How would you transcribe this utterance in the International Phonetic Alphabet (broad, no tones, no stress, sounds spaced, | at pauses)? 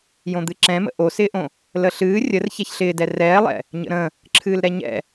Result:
j õ d̪ ɨ ǁ ɛ̃ m ə̰ ʔ o s ɪː ʔ õ | l ə ɬ ɨː rʲ ə r ç ɛ ç ɬ ɪː d ɛ r ɛː lˠ ɛ̰ | ɲ ə̰ ɾ ə̃ | ǁʰ ɨː l ɾ ɛ ɲ ɛ̰